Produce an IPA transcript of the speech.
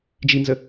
d͡ʒ i n z ə

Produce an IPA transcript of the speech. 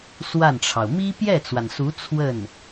s w a˥˩ n ʈ͡ʂʰ ɑ˩ ʊ̯ m i˥ p j ɛ˥˩ t͡s w a˩ n s u˧˥ t͡sʰ w ə˥˩ n

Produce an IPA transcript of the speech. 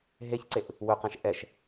ɦ e ç ǀ e ʔ | w ɵ q ɛ̃ ʃ ʔ ɛ ʃ

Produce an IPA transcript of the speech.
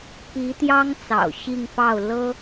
p i˧˥ t̪ j ɑ˥ ŋ t͡s ɑ̰˨˩ ʊ̯ ɕ i˥˧ ŋ f ɑ˥˩ ʊ̯ l ɤ˥

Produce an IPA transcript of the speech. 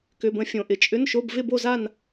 k ʏ˧˥˧ b ə̃˥˧ fʲ õ˥ ʔ ɪ˥˧ t͡ʃʼ ʏ˧˥˧ n ʃ o˧˥˧ b v ɪ˥˧ b o˥˧ z a˥˧ n

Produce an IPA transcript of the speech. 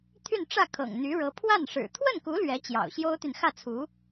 t̪ʰ y˥˧ n ʈ͡ʂ ä˥˩ kʰ ɤ̰˨˩ ŋ n̪ y˧˥ ɻ ɤ˧˥ pʰ w a˥˩ n ʂ ɻ̩˨˩ t̪ʰ w ə˥˩ n k u˧˥ l ɥ ɛ˧˥ t͡ɕ j ɑ̰˨˩ ʊ̯ ɕ j o˥ ʊ̯ t̪ y˨ n x ä˥˩ t͡sʰ u˧˥

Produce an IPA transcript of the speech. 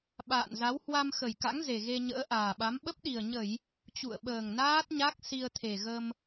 ɓ a̰ː˧˨ n z a˨˦ w h w a˧ m x ə˨˩ j k a̰˧˥ ŋ z e˨˩ ɣ e˧ ɲ ə̰ː˧˥ ʔ aː˨˩ ɓ a˨˦ m ɓ ə˦˥ p̚ ɗ i˨˩ ə̯ ɲ ə˧˩˨ j | t͡ɕ ṵ˧˨ ə̯ ɓ əː˨˩ ŋ n aː˦˥ t̚ ɲ a˦˥ k̚ s i˧ ə̯ t̪ʰ e˨˩ ɣ ə˧ m

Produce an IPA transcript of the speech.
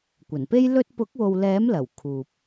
kʷ ɐ˨˩ n p e˥ j l ɵ˥ t̚ p ʊ˨˥ k̚ w o˨ w l ɛː˨˥ m l ɐ˨˩ w kʰ uː˨ p̚

